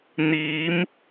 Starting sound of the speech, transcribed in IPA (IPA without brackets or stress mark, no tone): n̪